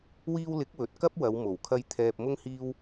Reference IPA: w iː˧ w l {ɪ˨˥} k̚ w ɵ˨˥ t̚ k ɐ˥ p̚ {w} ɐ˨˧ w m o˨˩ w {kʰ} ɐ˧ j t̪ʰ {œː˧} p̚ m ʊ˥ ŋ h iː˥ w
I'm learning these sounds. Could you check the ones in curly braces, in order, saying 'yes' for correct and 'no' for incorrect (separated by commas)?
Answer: yes, yes, yes, no